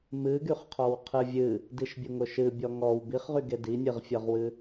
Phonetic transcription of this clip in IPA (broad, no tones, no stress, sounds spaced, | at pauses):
m ɨ ɡ y χ qʰ ɔ w qʰ ɨ vʲ ɨ | d i ʃ bʲ ʊ ŋ ʊ ʃ ɨ bʲ ɔ ŋ ɔ w b i χ ʁ y ɡ e d i nʲ ɨ ʁ fʲ ɤ ʁ w ɨ